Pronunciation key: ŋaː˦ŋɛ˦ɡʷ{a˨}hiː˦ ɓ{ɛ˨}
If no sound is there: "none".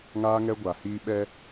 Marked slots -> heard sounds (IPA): a˨, ɛ˦

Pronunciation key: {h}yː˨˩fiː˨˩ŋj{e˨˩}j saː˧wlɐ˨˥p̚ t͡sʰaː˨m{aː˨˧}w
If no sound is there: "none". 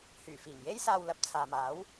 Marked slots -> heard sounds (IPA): h, e˥, aː˨˥

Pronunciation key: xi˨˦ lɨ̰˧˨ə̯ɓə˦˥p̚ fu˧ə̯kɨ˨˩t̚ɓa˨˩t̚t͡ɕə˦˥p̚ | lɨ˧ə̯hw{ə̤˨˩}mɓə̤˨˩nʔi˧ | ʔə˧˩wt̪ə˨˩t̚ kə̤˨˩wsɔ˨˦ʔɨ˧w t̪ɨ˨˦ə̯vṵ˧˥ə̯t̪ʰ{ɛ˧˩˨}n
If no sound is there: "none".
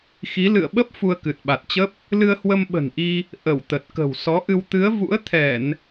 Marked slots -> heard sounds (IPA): ə˧, ɛ˧˩˨

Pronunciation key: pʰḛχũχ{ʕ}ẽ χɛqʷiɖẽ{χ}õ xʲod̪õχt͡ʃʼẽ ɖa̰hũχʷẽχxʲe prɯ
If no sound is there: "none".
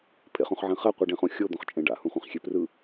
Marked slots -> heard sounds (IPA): ʕ, χ

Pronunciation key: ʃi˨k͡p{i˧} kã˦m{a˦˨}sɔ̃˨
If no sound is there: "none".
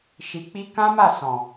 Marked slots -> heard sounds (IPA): i˧, a˦˨

